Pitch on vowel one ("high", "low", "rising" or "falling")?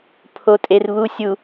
low